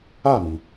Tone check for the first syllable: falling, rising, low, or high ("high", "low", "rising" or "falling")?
falling